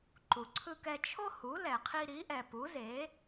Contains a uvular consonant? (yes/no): yes